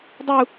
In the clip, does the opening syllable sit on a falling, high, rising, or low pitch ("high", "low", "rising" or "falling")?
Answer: high